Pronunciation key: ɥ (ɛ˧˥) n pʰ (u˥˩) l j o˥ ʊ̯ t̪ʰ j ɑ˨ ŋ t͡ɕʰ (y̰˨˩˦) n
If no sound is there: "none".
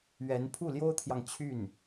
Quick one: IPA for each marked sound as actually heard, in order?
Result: ɛ˧˥, u˥˩, y˥˩

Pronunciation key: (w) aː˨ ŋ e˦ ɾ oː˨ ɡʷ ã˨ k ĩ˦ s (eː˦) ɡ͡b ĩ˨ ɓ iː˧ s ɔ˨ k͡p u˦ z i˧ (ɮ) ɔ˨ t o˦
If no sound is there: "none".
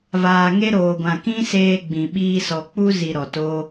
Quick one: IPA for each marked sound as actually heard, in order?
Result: v, eː˧, ɾ

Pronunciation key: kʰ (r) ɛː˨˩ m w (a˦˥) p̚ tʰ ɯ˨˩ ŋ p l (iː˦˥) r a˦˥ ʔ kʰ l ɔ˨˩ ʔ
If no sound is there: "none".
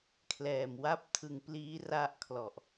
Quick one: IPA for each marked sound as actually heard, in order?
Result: l, a˦˥, iː˦˥

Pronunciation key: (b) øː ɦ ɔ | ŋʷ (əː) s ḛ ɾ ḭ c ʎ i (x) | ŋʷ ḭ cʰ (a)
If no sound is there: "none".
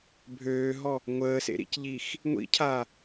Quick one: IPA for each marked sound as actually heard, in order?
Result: bʱ, əː, x, a

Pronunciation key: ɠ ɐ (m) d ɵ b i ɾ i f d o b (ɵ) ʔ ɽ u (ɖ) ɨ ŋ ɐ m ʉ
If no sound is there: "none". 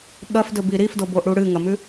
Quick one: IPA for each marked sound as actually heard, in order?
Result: f, o, ɽ

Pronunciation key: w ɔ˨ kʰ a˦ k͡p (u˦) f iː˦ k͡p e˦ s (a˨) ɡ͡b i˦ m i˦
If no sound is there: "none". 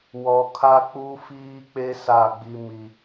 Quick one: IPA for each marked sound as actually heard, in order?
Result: u˦, a˦˨

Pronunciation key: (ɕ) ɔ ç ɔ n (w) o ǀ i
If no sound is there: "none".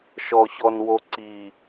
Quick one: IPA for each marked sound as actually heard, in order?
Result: ʃ, w

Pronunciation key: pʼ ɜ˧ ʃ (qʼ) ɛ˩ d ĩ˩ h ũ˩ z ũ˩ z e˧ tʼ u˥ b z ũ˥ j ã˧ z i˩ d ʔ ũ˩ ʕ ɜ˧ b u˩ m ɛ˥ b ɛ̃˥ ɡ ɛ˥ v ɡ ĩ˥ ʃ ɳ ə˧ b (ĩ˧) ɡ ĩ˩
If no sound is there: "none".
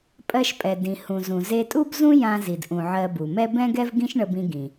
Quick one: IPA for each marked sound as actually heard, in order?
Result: pʼ, ĩ˧

